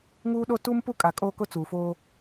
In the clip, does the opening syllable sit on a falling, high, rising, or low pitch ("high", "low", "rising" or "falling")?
high